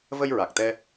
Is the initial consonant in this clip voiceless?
no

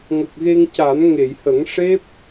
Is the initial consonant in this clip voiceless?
no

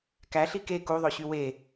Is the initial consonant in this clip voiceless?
yes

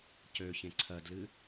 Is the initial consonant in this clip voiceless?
yes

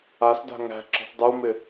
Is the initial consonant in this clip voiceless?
yes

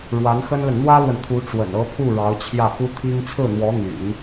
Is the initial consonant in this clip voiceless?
no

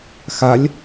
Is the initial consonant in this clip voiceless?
yes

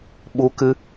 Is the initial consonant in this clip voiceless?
no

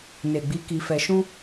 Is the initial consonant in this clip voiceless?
no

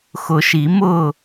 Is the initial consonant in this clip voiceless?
yes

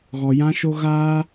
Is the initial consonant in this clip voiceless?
no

